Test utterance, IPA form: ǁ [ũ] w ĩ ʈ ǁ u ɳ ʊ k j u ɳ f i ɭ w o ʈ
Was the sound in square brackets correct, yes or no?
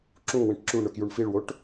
yes